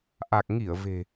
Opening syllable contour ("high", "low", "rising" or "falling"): low